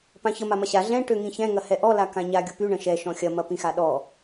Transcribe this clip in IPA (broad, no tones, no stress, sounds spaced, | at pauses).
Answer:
p ã ç ə m a m ɐ ɕ a ɮ ɛ̃ ʈ ø ŋ ĩ ç ɛ̃ ŋ ɐ h ɛ ʔ ɔ l a k ã ɲ a ɡʲ ʊ p y ɳ ə̃ ʃ ɛ ʃ ɔ̃ xʲ ɐ m ɐ p ĩ x a ɗ ɔ